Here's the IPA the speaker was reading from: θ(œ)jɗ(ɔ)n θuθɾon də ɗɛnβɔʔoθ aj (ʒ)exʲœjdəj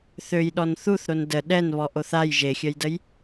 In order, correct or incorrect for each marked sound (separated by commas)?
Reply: incorrect, correct, correct